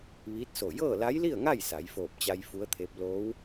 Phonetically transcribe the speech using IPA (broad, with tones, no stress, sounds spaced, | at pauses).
ʋ iː˧˥ t̚ s o˧˩ j ɤː˥˨ l a˧˥ j l i˥˨ ə̯ ŋ a˥˨ j s a˩˧ j f oː˧˩ p̚ t͡ɕ a˧ j f u˧˥ ə̯ t̪ʰ eː˧˥ p̚ l oː˧˥ w